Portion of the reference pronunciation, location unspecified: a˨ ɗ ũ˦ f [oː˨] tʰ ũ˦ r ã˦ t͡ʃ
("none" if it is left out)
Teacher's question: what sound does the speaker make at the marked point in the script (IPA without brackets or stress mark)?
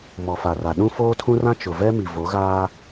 oː˦